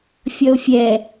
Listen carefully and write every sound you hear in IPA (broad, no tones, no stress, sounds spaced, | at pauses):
fʲ ʌ ʊ̯ fʲ ɛ